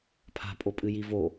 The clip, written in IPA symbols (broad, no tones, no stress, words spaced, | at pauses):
pʰa̤pʼopʼɨ jivo